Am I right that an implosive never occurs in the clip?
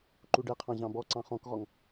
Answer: yes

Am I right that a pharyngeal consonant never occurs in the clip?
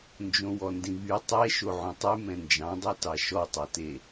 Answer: no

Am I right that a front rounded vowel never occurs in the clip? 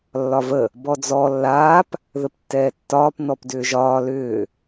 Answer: no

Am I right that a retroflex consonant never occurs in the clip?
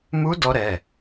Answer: yes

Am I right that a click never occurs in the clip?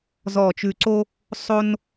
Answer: no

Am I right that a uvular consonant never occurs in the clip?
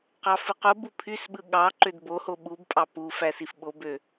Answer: no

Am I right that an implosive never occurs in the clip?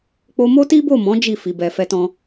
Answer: yes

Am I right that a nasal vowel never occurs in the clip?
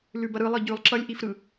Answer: yes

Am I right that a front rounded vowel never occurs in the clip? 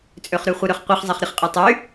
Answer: no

